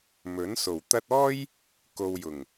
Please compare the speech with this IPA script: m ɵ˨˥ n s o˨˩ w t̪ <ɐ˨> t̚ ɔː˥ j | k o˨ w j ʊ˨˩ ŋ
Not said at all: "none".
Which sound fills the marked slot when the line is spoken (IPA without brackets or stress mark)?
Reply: ɐ˧